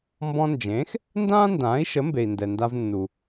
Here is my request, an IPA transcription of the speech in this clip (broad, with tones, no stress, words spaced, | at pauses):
mbɔ̃˧nd͡ʒẽː˩˥x | ndãː˥ndãː˩˥i̯ʃə˩˥mbe˩i̯ ndɛ˩nda˧v nːu˩